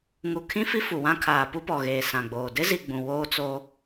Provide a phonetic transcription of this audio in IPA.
ŋu˨kʰĩ˦fi˦ fu˨wã˦kʰaː˨ pu˦pɔ˨ɣeː˨ sã˨ɡ͡boː˨ dɪ˦zi˨ ɡ͡bũ˨woː˦ t͡soː˦

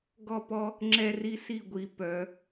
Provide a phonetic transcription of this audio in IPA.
ɡɔ˦˨pɔ˦ | ŋ͡ǁɛ˦ri˦si˦˨ɡʷi˨˦ pœ˨˦

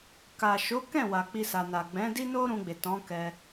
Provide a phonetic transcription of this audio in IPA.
ka˨ʃo˨˦kɛ̃˦˨ wa˨k͡pi˧sa˨na˨ ɡ͡bɛ̃˨˦di˦ no˦ɾũ˧ɡ͡be˨ tɔ̃˨˦kɛ˧

